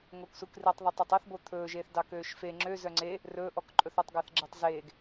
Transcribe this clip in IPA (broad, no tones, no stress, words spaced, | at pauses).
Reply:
ŋoksukritˤðˤœtˤ ɛtˤɛθbo t̪ʰɵːʒeːθdɑ køːʃfe ŋ͡ǁø zœŋ͡ǀe | rɵːʔɔk ǃʼɵθɵtˤɡæθɡ͡ǁetˤ zeːɡ